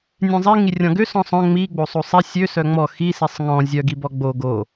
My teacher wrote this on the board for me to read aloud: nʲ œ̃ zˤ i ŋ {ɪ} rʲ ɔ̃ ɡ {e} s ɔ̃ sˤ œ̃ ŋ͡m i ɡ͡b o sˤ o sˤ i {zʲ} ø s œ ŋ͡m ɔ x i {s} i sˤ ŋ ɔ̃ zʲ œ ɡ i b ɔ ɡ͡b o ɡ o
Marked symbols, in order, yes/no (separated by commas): no, no, no, yes